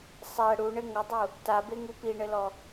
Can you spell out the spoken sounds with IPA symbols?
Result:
sˤæ ɽuɳɘ ŋədˤu | tabeŋu piɳɘlɔ

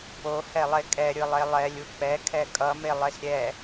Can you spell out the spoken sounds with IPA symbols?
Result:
pohɛlˠe kʼɛɾʲɯlˠe lˠɛlʲu k͡pɛkʰɛ kʼʌmelˠes ɾʲɛ

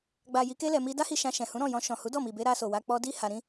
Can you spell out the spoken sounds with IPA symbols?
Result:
ɡ͡ba˨ ji˨˦ke˦ lɛ˧mi˦ da˦hi˧ ʃã˧ʃɛ̃˨hũ˨˦ ɾɔ̃˦˨jɔ̃˧ʃɔ̃˨ hu˨˦dɔ˦˨mi˨be˧ ɾa˧so˨wa˧ k͡pɔ˧di˦ ha˧ɾĩ˦

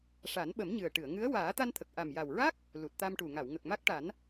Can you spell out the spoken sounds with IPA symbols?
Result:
ʂa˨˩˦nɓə˨˩˦mɲɨ˨˩ə̯ʈɨ˨˩˨ə̯ ŋɨ˧˥ə̯ waː˨˩˦t̪a˧nt̪ʰə˨˩k̚ ʔa˨˩mja˨˩wɹa˦˥k̚ | lu˨˩t̚t̪a˧mʈu˨˩ ŋa˨˩˨w ŋə˨˩k̚ma˦˥k̚ʈa˨˩˦n

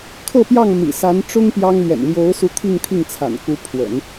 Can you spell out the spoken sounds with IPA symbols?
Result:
kʰɤ˥˧pjɑ˥˩ŋ mḭ˨˩sa˧˥nʈ͡ʂʊ˥ŋ pjɑ˥ŋ lɥɛ̰˨˩nljo˧˥ʊ̯su˧˥ t̪ʰi˥˧ŋt̪ʰi˥˩ŋt͡sʰa̰˨˩n ku˧˥pʰwə̰˨˩˦n

